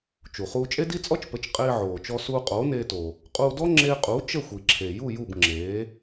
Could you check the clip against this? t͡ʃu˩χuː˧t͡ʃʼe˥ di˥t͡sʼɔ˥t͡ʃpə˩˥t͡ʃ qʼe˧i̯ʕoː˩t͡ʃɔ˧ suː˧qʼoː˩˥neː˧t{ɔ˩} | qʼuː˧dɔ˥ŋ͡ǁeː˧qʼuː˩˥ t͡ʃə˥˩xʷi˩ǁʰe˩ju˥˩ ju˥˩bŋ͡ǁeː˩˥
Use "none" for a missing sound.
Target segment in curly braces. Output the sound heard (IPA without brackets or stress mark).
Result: o˩